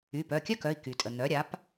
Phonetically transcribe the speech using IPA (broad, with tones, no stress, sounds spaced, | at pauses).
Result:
y˩˧˩ p œ˩˧˩ kʲ œ˥ k œ˩˧˩ i̯ k y˩ tʼ ə˩ n̪ œ˩˥ ɾʲ a˩˥ p